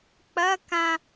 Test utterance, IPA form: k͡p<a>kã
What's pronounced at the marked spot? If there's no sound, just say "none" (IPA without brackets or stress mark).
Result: ɐ